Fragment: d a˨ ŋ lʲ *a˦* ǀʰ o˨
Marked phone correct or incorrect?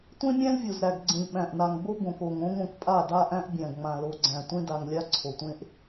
correct